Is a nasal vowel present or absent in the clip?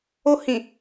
present